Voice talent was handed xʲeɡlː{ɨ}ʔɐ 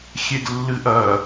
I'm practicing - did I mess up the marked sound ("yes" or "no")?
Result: no